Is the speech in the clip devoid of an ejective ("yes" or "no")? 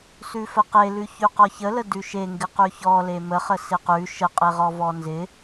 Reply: no